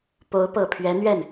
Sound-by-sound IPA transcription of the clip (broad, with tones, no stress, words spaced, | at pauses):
po˧˥ʊ̯pɤ˨˩pʰɥɛ˧˥n̪ɥɛ˥˩n